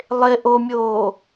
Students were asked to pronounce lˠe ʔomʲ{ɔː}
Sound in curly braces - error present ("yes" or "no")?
yes